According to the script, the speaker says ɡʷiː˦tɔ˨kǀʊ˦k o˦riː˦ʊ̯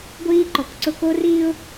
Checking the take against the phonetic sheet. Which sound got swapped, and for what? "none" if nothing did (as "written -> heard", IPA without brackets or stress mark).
t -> ǃ